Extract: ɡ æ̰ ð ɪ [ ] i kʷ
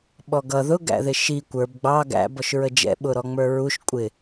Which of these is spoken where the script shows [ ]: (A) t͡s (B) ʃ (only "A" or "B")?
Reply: B